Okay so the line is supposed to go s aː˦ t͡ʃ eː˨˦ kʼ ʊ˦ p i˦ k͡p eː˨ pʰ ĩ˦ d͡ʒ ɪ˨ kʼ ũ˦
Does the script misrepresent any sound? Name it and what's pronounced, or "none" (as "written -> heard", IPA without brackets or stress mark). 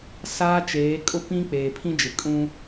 i˦ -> ĩ˦